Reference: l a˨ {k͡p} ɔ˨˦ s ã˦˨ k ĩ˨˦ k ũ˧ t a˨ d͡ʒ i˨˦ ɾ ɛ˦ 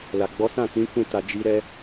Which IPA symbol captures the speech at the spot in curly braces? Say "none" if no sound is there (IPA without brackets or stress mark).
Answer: ɡ͡b